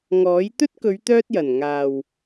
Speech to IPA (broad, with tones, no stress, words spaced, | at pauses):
ŋɔː˨˥j t̪ɵ˥t̚kɵ˨˧ɥ t̪œː˥t̚jɐ˨˩n ŋaː˨˩w